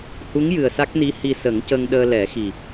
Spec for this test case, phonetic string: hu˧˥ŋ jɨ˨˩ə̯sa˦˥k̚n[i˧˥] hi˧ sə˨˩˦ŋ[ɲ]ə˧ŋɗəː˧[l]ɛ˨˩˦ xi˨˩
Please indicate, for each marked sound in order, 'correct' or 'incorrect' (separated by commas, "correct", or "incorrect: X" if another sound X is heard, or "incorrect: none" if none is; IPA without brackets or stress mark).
correct, incorrect: c, correct